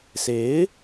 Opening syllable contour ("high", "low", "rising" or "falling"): rising